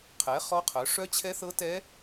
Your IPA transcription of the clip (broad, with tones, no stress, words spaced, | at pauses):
qʰɛ˨˥ χɔ˦˥qʰœ˨˥ ʂœ˦˥t͡ɕʰɛ˦˥θɤ˦˥ tɛ˦˥